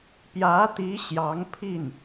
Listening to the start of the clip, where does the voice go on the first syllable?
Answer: rising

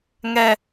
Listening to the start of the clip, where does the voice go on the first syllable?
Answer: high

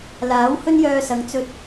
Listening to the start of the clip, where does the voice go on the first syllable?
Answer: rising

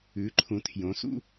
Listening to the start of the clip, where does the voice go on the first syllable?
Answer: rising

